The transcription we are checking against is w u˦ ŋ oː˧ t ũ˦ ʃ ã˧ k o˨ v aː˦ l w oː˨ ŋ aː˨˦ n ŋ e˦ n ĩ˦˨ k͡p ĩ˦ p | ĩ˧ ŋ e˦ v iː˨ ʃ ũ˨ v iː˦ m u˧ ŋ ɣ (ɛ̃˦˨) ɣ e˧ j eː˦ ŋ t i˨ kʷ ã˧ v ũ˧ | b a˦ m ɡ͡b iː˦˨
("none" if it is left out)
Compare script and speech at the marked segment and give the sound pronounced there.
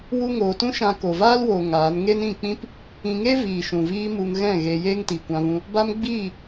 ɛ̃˦˨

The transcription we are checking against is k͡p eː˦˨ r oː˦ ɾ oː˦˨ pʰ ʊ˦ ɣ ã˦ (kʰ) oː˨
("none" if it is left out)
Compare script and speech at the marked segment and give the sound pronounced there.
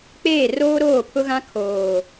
kʰ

